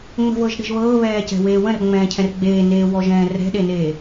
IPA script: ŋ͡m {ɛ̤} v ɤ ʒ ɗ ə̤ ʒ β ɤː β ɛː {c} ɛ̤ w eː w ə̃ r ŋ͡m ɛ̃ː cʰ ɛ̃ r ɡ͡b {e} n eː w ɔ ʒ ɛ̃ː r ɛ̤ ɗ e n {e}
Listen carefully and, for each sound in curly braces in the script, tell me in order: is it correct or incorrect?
incorrect, correct, incorrect, incorrect

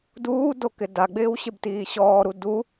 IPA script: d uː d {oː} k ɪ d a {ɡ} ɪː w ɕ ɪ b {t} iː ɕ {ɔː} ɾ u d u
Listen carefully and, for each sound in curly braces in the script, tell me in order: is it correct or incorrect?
incorrect, incorrect, correct, correct

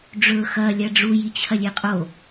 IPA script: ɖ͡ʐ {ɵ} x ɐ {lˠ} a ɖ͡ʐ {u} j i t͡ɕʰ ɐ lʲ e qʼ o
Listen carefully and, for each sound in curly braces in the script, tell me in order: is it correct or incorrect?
correct, incorrect, correct

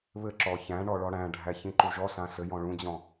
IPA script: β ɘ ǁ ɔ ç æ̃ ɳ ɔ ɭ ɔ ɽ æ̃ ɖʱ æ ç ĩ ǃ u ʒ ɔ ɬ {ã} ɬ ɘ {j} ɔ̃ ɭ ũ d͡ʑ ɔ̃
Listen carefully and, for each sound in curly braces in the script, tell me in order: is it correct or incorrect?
correct, correct

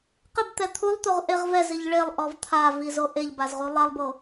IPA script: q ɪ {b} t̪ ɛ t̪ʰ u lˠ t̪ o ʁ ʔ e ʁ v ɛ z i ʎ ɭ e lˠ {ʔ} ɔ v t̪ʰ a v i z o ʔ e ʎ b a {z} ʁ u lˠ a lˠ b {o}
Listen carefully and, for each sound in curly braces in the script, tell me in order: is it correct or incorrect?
correct, correct, correct, correct

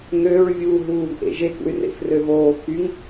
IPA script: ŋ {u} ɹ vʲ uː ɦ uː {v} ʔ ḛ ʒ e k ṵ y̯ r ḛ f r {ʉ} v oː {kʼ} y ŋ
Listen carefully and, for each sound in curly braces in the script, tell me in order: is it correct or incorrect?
incorrect, correct, incorrect, incorrect

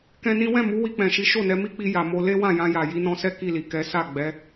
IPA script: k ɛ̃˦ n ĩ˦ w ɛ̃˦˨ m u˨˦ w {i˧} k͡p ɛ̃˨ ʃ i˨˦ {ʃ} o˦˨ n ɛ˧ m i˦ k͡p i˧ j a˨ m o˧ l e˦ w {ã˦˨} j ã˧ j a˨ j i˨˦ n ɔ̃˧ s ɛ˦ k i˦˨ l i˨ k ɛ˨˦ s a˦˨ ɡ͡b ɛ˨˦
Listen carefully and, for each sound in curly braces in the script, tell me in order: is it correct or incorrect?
correct, correct, correct

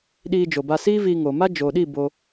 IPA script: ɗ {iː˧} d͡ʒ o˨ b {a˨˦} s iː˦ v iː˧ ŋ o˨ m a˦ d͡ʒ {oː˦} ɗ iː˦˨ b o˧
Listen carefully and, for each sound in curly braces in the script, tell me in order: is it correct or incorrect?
correct, incorrect, incorrect

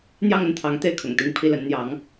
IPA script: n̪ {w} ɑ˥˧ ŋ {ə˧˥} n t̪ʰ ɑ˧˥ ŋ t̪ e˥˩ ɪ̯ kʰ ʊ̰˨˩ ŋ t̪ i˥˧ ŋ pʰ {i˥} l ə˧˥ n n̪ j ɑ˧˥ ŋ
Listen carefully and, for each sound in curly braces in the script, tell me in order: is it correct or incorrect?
incorrect, incorrect, incorrect

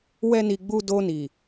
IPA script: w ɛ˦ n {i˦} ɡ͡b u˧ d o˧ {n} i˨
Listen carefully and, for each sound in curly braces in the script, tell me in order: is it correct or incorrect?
incorrect, correct

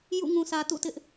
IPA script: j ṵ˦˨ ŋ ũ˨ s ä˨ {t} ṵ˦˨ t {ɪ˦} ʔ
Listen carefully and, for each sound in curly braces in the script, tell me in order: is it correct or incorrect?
correct, correct

